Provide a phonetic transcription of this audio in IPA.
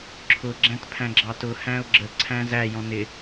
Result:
ǁʰ ʊ ɡ͡ǁ æ̃ t pʰ æ̃ ɡ͡ǁ ɑ t ʊ h æ̃ ʊ̯ ɡ͡ǁ ə ǀʰ æ̃ z æ j ɔ̃ n ɪ

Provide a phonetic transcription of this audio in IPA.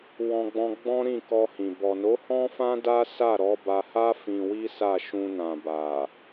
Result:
w ɔ̃˧ ɡ͡b ɔ̃˧ ɡ͡b ɔ̃˦ ɾ ĩ˦˨ k ɔ˧ h ĩ˨ b ɔ˨ n o˨˦ h ɔ̃˦ f ã˦ d a˦ s a˦˨ ɾ ɔ˨˦ b a˧ h a˦ f ĩ˧ w i˦ s a˦˨ ʃ ũ˧ n ã˨ b a˨

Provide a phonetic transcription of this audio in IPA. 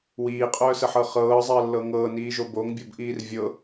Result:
w iː qʼ œː s ə ħ ɤ χ ɤː zˤ əː lː ɤ ŋ ɤː n iː ʒ o b o ŋ bʲ ɤ b ʔ iː r vʲ ɤ

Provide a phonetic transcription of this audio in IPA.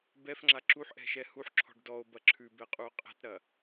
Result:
b ɛ f ŋ͡ǁ a ǁ u ħ ʔ ɛ̤ ʃ ɛ h u ħ ǁʰ ɔ̤ ɖ d ɔ o̯ b ɐ ǁʰ ʉ b ɛ qʼ u o̯ qʼ ɛ̤ t ɾ ɐ

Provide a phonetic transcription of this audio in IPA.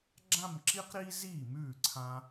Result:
ɡ͡ǁ ã˥˧ m ǁ i˥ q ɾ iː˥ z iː˥˩ m ʉː˥˩ ǀʰ ã˧

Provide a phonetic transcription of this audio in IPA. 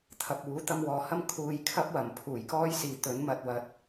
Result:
t̪ʰ ɐ˨ p̚ uː˨˥ t̪ ɐ˧ m w ɔː˨ h ɐ˥ m kʰ uː˧ j kʰ ɐ˥ p̚ w ɐ˨˩ m pʰ uː˨˩ j k ɔː˥ j s iː˨ t̪ ɵ˨˥ n m ɐ˨ t̚ w ɐ˨ t̚

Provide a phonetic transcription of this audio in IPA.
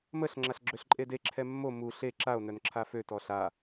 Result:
m ə ɬ ŋ͡ǁ a ɬ ɡ͡ǁ ø ɬ ǃʼ e d e ǁʰ ɛ mː o m u ɬ e ǁ a o̯ n œ n ǁʰ a f ø t ɔ ɬ a

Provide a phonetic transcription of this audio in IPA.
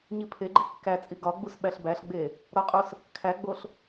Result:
ɲ i pʰ e ɡ͡ǃ i kː æ t͡sʼ i ɡ ɒ ɡ͡b u s ɓ æ ɬ b æ ɬ ɡ͡b e | ɾ ɒ qʼ o s | kʰ æ ɡ͡b o ɬ

